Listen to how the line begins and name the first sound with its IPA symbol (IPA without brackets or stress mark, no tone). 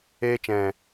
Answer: eː